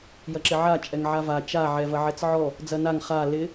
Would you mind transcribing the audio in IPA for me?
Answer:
j ɐ ǁ ɪ ʕ a t͡ʃʼ ɛ ŋ ʕ a v a t͡ʃ a ʕ ɛ v ɐ ʕ ɛ t͡s ʕ ɔ | d͡z ɐ n a ŋ χ a l ɪ

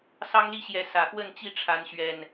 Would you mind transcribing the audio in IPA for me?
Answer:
s ɑ˦ ŋ l i˥˨ ɕ j ɛ˨˦ s ä˨˩ x w ə˥˨ n t͡ɕ i˥˨ ʈ͡ʂʰ a˨˦ n ɕ ɥ ɛ˨˩ n

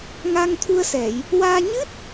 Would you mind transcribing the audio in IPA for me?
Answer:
ŋ a˧ ŋ t̪ʰ u˧ ə̯ s ɛ˨˩˨ j | w aː˧ ɲ ɨ˦˥ t̚

